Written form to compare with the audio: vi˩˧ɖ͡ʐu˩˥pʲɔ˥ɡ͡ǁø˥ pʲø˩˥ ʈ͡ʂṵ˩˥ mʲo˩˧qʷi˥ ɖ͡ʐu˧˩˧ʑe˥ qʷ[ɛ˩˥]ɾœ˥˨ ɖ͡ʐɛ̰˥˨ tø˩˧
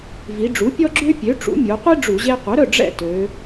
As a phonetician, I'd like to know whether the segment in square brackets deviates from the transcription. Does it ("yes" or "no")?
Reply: no